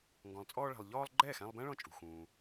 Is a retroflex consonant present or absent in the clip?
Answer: present